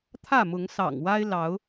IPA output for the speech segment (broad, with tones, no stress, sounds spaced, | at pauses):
t̪ʰ ä˥˨ m ʊ˨˦ ŋ s ɑ̰˨˩ ŋ w a˦ ɪ̯ l ɑ˨˦ ʊ̯